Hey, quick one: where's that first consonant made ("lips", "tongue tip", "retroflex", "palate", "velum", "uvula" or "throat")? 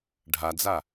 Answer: retroflex